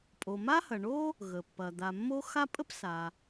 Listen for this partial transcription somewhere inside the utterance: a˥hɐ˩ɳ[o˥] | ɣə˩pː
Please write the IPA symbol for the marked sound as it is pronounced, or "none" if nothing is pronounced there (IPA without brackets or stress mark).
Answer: o˥